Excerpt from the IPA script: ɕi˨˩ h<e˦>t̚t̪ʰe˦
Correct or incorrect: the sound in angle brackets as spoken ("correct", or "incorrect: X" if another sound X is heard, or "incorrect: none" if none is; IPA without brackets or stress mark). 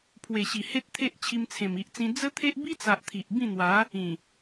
correct